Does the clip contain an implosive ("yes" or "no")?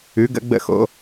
no